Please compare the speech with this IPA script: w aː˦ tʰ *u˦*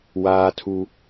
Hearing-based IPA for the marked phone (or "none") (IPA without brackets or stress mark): u˦